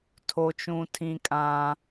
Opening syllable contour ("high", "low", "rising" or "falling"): high